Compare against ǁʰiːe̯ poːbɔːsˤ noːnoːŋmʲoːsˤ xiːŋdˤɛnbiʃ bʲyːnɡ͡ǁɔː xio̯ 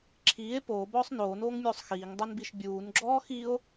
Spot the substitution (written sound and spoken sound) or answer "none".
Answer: yː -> uː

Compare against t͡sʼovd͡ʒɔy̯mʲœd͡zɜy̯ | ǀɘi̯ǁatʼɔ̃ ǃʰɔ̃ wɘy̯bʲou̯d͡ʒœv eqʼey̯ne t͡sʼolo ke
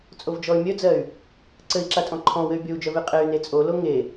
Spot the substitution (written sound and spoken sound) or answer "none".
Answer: k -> ŋ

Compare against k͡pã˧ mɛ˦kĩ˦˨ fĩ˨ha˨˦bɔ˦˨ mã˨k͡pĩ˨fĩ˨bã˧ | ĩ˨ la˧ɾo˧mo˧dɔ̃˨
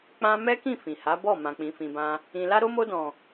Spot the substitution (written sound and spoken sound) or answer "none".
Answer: none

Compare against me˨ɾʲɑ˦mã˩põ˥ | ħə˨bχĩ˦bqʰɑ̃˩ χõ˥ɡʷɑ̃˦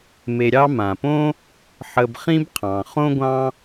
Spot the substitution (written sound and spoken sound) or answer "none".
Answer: none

